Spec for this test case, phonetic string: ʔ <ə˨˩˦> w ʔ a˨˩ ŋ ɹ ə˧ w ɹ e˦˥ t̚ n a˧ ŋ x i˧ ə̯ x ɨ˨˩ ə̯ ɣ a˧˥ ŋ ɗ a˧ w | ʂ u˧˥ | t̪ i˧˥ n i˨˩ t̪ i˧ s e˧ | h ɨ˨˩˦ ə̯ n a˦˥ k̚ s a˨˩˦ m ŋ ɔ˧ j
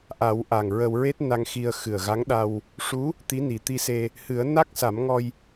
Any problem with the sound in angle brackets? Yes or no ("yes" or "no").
yes